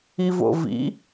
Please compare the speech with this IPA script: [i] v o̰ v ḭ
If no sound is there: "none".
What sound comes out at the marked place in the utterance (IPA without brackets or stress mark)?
i